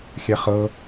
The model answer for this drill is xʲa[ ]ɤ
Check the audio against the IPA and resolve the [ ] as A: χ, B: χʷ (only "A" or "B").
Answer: A